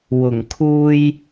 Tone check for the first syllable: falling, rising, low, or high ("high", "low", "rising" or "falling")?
low